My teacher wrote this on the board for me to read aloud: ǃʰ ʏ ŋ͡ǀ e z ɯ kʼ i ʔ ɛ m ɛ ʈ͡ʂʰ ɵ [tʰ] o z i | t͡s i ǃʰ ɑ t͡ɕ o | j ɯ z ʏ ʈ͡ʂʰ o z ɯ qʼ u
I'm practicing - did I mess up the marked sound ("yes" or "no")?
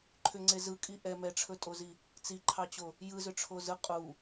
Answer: yes